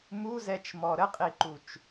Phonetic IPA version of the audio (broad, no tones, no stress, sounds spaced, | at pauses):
m u z ɛ t͡ʃ m ɔ ɾ ə qʼ i ǃ u t͡ʃ